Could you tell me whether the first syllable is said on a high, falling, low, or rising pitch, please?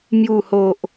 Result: low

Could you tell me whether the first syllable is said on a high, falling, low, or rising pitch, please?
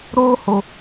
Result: high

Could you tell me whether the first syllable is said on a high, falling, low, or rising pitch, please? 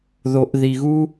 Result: low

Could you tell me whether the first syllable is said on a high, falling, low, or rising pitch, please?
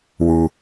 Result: low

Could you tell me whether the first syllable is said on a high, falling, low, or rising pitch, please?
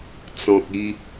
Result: low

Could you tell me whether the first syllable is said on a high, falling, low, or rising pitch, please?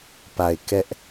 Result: low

